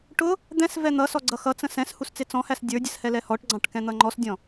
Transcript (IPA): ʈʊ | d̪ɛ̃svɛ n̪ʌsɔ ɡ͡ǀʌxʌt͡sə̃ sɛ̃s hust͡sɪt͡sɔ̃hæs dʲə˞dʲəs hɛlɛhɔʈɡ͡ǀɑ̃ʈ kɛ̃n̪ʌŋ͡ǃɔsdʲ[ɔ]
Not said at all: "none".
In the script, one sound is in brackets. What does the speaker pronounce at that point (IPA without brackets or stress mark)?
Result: ɔ̃